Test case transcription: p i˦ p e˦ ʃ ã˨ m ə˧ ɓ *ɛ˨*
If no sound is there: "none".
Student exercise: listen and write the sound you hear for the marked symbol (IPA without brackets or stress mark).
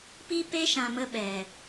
ɛ˨